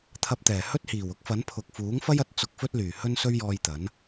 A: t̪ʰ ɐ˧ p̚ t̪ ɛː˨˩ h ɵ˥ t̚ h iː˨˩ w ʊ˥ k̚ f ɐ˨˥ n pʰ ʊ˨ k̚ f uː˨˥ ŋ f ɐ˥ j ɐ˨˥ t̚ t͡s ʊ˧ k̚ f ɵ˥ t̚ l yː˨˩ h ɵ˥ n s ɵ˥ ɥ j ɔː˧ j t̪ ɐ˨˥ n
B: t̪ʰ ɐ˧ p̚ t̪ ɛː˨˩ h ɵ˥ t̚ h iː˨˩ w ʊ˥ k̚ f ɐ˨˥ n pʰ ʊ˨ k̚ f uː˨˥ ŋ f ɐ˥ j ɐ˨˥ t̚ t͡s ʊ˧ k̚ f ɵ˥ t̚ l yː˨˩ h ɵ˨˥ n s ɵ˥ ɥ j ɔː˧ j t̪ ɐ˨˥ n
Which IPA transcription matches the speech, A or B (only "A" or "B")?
A